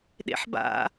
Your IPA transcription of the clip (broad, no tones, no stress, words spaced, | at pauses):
ɗḛħba̰